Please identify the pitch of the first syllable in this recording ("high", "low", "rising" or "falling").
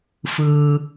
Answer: low